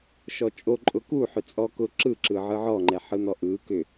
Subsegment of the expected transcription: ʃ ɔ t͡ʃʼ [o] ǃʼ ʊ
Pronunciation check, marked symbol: correct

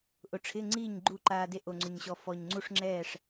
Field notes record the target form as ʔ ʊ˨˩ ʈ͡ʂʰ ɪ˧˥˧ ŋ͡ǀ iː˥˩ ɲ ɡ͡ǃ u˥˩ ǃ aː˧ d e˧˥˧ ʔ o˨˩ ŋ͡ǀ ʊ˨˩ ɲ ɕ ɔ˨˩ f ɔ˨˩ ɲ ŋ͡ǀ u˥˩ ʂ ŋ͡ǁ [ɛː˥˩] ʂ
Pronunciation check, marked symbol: correct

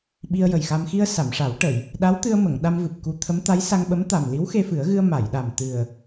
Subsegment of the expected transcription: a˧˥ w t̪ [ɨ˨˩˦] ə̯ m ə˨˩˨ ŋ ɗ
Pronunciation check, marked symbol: incorrect: ɨ˧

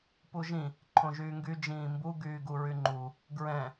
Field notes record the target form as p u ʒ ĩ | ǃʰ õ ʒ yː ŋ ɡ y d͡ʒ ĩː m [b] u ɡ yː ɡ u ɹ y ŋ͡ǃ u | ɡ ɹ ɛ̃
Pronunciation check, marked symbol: correct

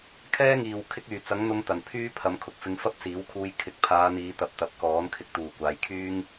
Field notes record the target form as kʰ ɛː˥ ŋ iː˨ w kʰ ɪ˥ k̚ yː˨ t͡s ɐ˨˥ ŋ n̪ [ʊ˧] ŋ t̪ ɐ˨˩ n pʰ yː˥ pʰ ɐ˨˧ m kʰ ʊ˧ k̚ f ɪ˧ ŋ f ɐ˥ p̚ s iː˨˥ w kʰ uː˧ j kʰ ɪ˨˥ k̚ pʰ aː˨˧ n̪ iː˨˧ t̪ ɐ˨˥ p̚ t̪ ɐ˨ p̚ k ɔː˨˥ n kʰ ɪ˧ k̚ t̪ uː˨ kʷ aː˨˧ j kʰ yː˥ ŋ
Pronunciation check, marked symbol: correct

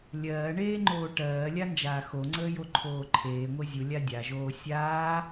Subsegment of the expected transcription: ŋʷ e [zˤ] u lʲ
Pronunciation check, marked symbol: incorrect: zʲ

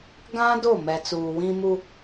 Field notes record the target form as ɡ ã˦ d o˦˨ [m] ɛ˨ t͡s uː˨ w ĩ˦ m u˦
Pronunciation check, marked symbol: correct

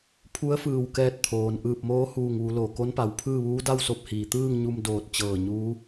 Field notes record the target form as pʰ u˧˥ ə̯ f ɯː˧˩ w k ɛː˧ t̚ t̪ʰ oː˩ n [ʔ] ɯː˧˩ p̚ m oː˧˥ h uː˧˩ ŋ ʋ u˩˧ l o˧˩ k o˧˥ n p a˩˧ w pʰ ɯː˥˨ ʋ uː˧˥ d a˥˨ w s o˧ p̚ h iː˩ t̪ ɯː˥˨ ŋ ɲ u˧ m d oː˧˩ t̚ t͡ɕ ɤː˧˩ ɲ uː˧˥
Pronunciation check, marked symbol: correct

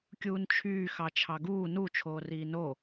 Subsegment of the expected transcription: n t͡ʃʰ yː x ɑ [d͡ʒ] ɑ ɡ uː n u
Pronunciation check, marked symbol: incorrect: t͡ʃʰ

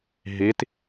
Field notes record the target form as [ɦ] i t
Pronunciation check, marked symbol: correct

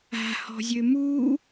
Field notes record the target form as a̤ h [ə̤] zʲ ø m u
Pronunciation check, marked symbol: incorrect: ɔ̤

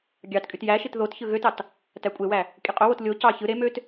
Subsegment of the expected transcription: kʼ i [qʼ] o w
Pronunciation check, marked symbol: correct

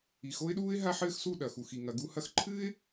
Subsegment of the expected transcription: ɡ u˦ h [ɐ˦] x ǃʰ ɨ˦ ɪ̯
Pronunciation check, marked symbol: correct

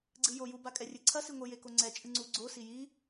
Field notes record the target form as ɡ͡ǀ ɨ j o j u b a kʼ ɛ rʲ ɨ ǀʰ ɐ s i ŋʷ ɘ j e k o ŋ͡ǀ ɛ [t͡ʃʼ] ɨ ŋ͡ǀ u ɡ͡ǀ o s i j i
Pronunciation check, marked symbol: correct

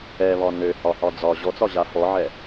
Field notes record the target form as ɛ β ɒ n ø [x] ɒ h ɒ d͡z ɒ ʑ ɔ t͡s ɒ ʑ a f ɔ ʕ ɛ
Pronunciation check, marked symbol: incorrect: h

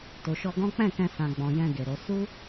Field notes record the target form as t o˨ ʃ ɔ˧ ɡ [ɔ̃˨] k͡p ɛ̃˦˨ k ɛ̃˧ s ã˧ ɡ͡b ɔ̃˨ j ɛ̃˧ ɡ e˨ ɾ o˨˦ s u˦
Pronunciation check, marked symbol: incorrect: ɔ̃˦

